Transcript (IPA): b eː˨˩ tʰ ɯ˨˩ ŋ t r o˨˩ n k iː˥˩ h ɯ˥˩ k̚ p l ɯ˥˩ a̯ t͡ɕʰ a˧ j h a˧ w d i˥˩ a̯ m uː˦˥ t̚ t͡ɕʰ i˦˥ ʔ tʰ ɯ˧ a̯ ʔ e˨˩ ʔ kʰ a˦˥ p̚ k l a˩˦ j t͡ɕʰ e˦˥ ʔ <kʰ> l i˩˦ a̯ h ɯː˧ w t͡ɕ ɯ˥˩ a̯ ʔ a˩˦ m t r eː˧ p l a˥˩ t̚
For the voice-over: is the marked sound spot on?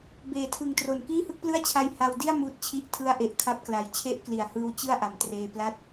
no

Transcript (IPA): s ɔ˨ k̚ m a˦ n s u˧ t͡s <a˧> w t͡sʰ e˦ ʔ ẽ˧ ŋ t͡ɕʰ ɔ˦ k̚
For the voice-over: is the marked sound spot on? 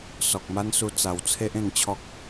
no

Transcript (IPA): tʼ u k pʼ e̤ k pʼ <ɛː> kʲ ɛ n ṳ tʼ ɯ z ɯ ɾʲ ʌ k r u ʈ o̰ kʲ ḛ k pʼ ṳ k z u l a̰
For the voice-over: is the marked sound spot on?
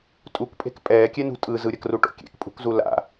yes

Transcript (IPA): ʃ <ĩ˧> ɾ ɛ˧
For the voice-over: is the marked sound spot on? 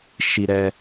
no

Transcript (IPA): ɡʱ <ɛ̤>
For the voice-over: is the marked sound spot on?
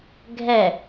no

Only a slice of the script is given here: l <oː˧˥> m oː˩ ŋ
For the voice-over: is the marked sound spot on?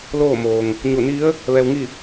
no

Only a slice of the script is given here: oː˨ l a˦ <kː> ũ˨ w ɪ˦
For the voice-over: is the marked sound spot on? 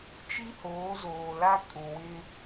no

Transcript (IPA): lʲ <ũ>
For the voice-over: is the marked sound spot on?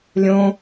no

